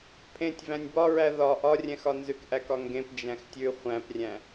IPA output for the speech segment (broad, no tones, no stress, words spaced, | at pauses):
pʰẽtʲ væ̃nʲbɒɹæ ðɒ ʔɒrʲɛ̃xɒ nzʉkʔækɒŋɡẽp d͡ʒæ̃xtʲʉ χʷæ̃prʲæ̃